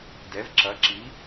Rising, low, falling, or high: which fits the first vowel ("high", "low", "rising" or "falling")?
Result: rising